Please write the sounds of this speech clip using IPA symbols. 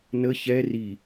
n ə ç ɛ r i

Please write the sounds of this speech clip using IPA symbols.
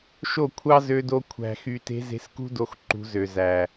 ʃ o˦˨ kʷʰ ɑ˦ z ø˧ d o˧ kʷʰ æ̤˨ x y˨ t e̤˧ z e̤˧ s k ṳ˦ d o˧ x ǃ ṳ˧ z ø˨ z æ˨

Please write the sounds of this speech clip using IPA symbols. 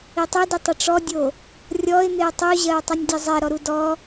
i tˤ i d i tˤ ɪ ʈ͡ʂ ɔ dʲ o | rʲ ɔ ɪ̯ n̪ ɪ ʊ̯ tˤ u ʑ ɜ ʊ̯ tˤ ɨ nʲ dʲ ɛ zˤ ɛ ɾ ɔ ɾ u d ɔ

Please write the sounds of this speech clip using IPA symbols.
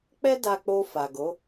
k͡p ɛ˦ d a˧ k͡p o˧ f a˨ ɡ o˨˦

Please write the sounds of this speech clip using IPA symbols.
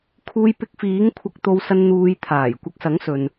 kʰ uː˧ j p ɪ˧ k̚ f iː˨˥ ŋ kʷʰ ɐ˧ k̚ t̪ o˧ w s ɐ˧ n n̪ uː˨˧ j t̪ʰ aː˨˩ j kʷ ɐ˧ k̚ s ɐ˨˥ ŋ s ɵ˨ n

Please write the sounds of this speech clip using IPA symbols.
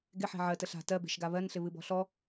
ɡ ɪ ħ e̤ ʕ ɜ t ə ɬ a̤ t ɜ b e̤ ʃ ɡ a β ɜ n ɬ ɪ β ɨ b ɔ̤ ɬ ɔ

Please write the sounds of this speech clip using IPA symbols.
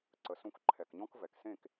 ǀ ə˨ s ũ˧ k ǃʰ ɛ˨ k ɲ ɔ̃˦ k v ɛ˨ k s ẽ˦˨ k

